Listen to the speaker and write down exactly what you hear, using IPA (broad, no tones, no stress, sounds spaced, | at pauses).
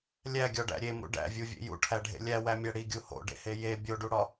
lʲ æ ɡʲ ɒ ɖ æ̰ ɾʲ e m ṵ ɖ æ̰ vʲ u vʲ ḛ j ṵ ʈʰ æ ɖʱ ḛ lʲ æ w æ mʲ æ ɽ i ɡʲ u h o̰ ɖ ḛ h e j e bʲ o ɖ u ɽ ɒ